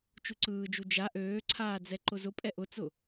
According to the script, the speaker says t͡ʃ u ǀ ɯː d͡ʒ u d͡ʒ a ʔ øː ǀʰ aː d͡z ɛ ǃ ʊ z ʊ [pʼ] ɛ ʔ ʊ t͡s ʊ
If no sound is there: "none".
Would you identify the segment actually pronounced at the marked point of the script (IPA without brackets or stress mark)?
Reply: pʼ